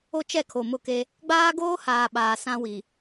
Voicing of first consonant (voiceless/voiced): voiceless